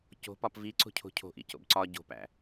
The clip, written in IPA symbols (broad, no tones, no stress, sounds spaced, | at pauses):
c o̤ p ɒ p v i ǀ o̤ cʰ o̤ cʰ o̤ ʔ ḭ c o̰ b ǀ ɒ ɟ o̤ p æ̰